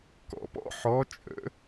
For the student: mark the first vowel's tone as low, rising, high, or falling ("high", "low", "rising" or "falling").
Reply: low